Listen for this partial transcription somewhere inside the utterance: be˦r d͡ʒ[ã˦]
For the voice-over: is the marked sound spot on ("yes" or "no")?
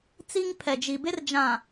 no